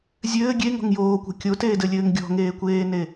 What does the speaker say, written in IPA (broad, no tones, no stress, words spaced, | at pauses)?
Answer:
zʲɘː ɡʲeŋɔ̤ŋ joːkʷɛ̤ kʲoteːdɘlʲɘːŋ ɡʲɔ̤ŋeːkʷeːne